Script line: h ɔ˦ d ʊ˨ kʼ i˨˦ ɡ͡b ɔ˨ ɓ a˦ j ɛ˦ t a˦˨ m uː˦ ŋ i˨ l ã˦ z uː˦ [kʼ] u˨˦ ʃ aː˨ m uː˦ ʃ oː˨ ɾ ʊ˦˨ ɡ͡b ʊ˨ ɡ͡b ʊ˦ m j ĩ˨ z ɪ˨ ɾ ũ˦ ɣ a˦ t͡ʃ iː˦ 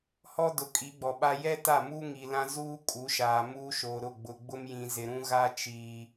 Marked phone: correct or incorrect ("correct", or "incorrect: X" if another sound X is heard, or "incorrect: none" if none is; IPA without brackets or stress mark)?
correct